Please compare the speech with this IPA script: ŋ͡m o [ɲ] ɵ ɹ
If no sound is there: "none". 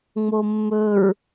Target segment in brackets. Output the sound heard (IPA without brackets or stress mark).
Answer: mː